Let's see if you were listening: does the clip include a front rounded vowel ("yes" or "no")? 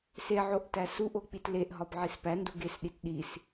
no